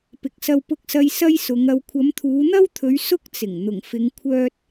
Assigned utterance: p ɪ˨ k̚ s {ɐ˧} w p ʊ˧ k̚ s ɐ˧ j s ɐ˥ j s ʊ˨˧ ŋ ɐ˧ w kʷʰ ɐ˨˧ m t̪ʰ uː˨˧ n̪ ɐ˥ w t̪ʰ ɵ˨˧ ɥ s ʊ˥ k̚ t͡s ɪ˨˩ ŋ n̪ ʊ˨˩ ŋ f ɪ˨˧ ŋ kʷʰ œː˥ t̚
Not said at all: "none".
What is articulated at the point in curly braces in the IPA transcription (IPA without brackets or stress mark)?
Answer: ɐ˧